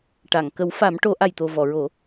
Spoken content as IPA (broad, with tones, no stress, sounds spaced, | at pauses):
ʈ a˨˩˨ ŋ k ə˨˩˦ w f a˨˩˦ m ʈ o˨˩˦ ʔ a˨˩ j t̪ o˨˩ v ɔ˨˩˨ ɹ o˨˩˦